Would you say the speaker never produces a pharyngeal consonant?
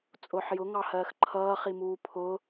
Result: no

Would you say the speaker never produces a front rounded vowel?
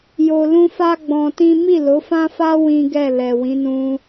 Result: yes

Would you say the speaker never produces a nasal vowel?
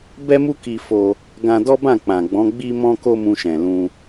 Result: no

